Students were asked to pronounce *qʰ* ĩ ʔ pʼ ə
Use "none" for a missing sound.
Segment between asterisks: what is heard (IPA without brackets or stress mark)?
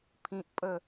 pʰ